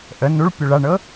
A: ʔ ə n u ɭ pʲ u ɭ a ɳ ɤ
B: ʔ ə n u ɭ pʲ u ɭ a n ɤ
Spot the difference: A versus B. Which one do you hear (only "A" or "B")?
A